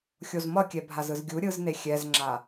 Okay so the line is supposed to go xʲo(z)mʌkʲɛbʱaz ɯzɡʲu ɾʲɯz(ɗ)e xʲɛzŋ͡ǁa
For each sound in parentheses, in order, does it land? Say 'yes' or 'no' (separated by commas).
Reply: yes, no